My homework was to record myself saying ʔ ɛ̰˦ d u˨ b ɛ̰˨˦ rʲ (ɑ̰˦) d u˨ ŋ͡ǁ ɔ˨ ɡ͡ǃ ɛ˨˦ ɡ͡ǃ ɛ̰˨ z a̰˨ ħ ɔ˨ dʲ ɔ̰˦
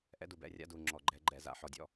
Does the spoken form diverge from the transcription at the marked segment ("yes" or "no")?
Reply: yes